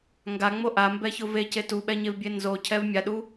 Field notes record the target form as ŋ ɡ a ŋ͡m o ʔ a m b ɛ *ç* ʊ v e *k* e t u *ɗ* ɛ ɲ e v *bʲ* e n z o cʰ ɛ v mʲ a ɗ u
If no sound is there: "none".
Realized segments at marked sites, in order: ç, c, ɓ, bʲ

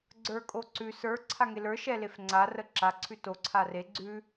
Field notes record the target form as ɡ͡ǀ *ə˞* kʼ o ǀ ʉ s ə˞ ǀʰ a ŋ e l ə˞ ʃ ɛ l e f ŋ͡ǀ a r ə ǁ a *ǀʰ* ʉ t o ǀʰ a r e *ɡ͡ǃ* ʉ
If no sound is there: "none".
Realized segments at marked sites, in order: ə˞, ǀʰ, ɡ͡ǀ

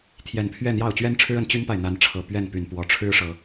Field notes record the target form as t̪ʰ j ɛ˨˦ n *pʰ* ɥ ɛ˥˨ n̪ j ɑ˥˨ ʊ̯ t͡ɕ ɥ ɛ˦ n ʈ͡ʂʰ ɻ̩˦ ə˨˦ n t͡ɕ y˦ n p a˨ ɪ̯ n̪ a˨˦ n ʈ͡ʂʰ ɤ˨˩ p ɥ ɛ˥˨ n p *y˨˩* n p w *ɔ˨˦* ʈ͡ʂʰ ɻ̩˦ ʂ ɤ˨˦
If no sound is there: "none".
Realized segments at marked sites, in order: pʰ, y˨˩, ɔ˨˦

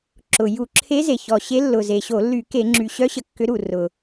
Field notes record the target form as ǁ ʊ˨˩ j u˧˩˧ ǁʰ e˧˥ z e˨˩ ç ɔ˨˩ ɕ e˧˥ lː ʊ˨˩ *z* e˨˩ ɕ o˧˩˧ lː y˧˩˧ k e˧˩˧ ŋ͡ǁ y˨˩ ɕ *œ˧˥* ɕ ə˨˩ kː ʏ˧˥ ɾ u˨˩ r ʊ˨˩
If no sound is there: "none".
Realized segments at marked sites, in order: z, œ˧˥

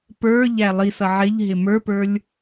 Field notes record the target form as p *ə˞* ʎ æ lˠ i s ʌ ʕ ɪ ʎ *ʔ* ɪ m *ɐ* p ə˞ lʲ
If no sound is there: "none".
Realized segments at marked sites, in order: ə˞, ɦ, ə˞

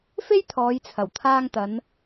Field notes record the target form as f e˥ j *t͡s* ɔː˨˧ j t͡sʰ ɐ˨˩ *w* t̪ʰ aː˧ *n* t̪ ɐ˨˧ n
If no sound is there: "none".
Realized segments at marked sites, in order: t̪ʰ, w, ŋ

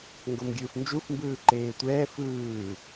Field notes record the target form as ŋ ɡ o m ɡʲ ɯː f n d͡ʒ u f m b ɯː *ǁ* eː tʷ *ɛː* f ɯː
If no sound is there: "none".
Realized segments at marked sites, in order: ǃ, ɛː

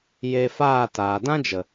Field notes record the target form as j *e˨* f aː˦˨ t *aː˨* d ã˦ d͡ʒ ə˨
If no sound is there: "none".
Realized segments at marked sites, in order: e˧, aː˨

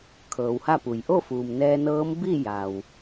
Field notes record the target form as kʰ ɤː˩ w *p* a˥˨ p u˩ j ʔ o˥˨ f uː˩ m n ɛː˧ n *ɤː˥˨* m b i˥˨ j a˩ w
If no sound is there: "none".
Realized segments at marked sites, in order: h, ɤː˧˥

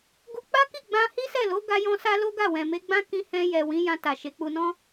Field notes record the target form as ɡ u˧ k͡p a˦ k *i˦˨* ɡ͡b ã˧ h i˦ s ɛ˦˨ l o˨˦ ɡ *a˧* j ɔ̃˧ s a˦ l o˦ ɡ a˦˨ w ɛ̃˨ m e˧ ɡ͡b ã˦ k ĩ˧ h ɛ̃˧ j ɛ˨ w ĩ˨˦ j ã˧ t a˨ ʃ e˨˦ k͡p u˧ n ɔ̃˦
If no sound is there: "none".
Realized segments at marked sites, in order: i˦˨, a˧

